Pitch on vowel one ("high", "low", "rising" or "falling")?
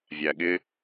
low